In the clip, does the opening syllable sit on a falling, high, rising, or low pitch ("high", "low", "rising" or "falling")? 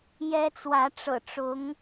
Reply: high